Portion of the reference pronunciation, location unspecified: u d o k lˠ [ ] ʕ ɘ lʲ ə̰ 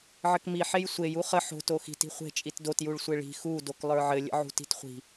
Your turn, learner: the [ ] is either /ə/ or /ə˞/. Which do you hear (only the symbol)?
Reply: ə˞